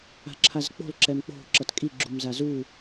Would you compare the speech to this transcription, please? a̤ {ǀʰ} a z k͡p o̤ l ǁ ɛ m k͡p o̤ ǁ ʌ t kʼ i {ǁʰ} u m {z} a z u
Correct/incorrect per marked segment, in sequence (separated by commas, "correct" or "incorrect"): incorrect, incorrect, correct